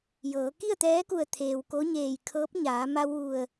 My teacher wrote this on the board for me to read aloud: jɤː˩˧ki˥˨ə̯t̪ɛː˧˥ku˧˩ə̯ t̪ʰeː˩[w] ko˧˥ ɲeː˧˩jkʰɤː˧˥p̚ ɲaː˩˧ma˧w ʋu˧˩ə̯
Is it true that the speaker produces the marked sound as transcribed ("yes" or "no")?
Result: yes